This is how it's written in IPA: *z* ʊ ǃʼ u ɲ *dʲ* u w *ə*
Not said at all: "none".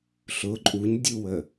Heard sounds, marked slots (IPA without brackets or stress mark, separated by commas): ɬ, dʲ, ə